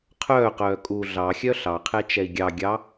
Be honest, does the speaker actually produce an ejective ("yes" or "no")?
yes